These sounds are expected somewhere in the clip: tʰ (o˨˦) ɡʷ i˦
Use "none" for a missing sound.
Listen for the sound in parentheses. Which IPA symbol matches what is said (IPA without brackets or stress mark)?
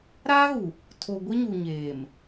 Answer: o˨